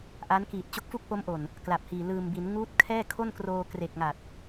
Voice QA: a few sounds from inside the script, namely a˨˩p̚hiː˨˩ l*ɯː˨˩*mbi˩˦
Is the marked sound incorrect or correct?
correct